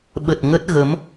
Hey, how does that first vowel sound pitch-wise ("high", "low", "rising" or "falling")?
low